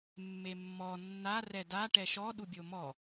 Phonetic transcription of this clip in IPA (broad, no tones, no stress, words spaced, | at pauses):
mːemːɔ nːa rɛda ʈɛʃɔ ɗubʲomɔ